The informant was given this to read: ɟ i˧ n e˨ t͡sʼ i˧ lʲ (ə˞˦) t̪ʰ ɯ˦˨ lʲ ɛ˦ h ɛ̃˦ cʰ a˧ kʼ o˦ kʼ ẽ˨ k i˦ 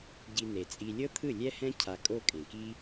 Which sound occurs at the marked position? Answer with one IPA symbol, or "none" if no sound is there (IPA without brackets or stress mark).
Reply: ɤ˦